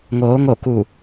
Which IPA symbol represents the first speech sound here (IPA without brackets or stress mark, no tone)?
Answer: ŋ